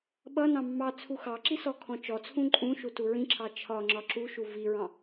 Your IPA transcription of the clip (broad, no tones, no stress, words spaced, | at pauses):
ɓʌnɑ̃ mːɑt͡sʰu xɑǁi sɔkʰɔ̃t͡ʃɔt͡sʰũ ǃʼũʃu tuɹĩǁʰɑ t͡ʃʰɒ ŋ͡ǁɒǁuʃu viɹɑ̃